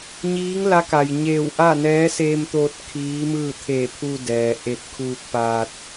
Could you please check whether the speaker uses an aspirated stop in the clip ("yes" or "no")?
yes